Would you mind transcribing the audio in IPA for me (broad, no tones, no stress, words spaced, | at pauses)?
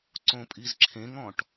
ǀõpʼizǁʰẽŋɔ̃ʈ